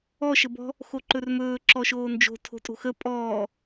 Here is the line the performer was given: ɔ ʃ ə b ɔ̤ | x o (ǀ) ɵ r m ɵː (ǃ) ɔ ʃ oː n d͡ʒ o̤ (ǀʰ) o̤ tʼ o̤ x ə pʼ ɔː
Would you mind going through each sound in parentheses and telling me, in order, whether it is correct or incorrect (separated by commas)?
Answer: incorrect, incorrect, incorrect